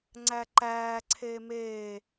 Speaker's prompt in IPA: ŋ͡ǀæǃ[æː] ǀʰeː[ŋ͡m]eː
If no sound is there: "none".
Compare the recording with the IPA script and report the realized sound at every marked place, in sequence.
æː, m

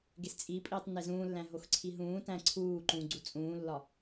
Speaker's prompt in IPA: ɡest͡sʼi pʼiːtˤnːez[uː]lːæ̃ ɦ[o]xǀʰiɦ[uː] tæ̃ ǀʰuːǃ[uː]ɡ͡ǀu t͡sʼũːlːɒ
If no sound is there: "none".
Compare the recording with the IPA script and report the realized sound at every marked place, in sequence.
ũː, o, ũː, ũː

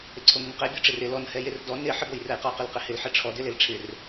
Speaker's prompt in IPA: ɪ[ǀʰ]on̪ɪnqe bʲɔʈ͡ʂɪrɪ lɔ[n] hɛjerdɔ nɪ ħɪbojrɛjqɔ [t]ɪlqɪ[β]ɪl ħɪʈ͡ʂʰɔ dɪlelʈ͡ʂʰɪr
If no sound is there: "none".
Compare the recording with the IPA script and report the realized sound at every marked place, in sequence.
ǀʰ, n, q, h

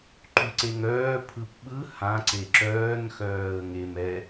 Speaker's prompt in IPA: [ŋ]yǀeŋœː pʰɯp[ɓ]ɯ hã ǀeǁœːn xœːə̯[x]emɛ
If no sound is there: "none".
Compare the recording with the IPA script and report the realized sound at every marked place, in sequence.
ǃ, ɓ, ŋ

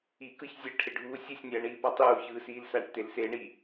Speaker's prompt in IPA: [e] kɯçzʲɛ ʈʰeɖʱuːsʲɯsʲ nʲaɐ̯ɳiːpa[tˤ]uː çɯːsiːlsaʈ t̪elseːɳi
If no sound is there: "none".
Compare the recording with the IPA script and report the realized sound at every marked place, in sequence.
i, tˤ

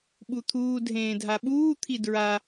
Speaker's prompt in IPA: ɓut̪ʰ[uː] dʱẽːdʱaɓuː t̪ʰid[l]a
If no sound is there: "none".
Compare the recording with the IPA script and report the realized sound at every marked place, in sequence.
uː, ɹ

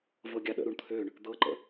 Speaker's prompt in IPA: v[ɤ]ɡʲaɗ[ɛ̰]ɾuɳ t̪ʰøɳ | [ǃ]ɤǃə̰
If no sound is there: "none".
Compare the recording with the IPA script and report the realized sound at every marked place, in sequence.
ɤ, ə̰, d̪

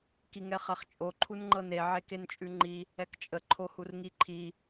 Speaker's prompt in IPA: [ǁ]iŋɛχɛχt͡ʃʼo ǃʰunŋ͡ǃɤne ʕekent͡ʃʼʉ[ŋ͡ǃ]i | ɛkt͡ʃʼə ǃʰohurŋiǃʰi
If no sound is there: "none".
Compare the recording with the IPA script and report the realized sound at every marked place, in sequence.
k, ŋ͡ǃ

